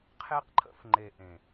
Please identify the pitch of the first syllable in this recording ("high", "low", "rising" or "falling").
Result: high